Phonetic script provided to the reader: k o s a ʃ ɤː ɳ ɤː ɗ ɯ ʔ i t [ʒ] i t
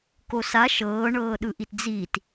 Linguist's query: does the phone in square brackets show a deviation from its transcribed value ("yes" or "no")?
yes